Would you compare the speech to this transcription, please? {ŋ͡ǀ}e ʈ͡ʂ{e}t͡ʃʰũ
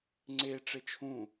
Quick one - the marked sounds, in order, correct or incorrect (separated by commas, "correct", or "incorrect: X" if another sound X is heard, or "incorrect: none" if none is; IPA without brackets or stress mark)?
correct, correct